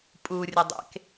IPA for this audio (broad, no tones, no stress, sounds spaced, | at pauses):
pʼ u rʲ ə dˤ ḛ k